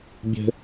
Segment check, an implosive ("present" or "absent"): absent